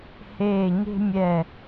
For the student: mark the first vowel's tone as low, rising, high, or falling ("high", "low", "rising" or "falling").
falling